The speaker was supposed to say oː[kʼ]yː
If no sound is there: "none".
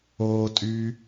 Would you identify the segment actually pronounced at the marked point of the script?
tʼ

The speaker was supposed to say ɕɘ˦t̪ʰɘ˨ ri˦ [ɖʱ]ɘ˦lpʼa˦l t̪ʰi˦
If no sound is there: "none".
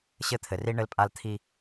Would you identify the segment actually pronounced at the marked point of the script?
ɳ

